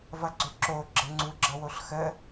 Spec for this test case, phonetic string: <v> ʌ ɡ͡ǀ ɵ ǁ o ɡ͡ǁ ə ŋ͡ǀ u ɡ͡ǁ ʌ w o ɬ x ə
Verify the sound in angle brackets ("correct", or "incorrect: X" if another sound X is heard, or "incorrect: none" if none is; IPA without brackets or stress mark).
correct